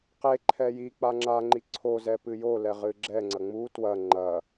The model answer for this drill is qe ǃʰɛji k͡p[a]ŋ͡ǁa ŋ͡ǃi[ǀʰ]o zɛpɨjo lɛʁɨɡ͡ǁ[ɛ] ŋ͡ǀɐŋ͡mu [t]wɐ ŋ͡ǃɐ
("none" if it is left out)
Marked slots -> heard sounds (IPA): a, ǀʰ, ɛ, t

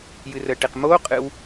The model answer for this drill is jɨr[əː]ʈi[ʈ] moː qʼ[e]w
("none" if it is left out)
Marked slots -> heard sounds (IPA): əː, q, ɨ

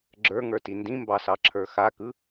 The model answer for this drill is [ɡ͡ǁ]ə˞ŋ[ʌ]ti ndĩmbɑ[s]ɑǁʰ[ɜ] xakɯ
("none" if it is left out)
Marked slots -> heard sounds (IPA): ɡ͡ǁ, ə˞, s, ə˞

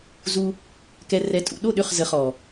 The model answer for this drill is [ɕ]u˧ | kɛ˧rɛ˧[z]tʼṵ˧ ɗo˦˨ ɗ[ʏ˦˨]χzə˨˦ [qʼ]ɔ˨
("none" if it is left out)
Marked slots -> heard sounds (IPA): z, none, ʏ˦˨, χ

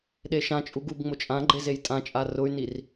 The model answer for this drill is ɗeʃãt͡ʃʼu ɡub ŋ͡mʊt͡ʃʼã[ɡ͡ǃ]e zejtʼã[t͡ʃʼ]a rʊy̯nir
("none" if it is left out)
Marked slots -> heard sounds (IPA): ɡ͡ǃ, t͡ʃʼ

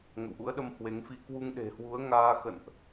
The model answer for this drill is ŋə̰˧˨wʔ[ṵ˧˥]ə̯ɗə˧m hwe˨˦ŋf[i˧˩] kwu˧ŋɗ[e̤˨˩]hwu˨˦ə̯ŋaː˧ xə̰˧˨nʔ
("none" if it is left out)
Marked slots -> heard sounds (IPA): ṵ˧˥, i˧, e̤˨˩

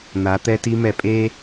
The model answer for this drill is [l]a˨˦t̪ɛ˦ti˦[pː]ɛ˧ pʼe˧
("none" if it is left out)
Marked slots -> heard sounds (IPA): n̪, m

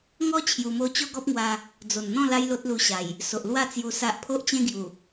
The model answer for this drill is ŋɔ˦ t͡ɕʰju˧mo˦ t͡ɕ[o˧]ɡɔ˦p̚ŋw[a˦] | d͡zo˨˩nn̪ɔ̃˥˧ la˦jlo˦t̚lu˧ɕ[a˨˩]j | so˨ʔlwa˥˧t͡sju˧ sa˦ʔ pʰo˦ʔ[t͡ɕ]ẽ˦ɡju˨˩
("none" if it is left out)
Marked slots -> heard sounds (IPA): o˦, a˧, a˨˩, t͡ɕ

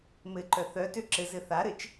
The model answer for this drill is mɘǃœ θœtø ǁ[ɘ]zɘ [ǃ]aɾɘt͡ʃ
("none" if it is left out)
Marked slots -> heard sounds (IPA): ɘ, θ

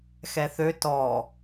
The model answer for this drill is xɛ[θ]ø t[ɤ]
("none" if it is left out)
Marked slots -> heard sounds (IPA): θ, ɔ

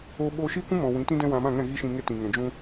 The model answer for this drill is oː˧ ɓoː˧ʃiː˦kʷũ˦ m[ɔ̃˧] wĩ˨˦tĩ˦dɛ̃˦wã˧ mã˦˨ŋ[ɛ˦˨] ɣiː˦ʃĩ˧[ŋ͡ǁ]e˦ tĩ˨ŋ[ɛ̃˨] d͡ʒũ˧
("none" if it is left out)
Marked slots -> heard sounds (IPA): ɔ̃˨, ɛ̃˦˨, ŋ, ɛ̃˨

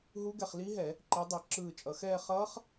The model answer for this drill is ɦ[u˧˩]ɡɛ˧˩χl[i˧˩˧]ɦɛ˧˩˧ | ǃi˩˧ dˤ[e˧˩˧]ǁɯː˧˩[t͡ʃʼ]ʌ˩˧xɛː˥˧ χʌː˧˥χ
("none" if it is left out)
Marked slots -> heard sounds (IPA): u˧˥, i˧˥, e˧˩˧, t͡ʃʼ

